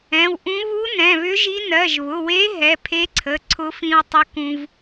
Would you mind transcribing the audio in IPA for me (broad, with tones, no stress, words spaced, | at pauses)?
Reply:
ɛ̃˩˧˩wʔũ˧˥ βu˧˥ nɛ̃˩˧˩βʏ˧˥ʒi˧˥ nɜ˩˧˩ʒβʊ˩˧˩we˧˥ ɦɛ˩˧˩pʰe˧˥ǀʰə˩˧˩ ǀʰʊ˧˥fĩ˧wtˤə˧˥ kũ˧v